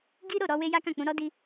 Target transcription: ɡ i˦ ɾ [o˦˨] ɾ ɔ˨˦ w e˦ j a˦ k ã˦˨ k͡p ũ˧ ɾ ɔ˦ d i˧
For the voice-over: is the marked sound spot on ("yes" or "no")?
yes